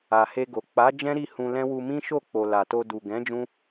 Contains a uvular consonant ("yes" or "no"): no